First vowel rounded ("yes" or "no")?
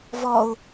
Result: yes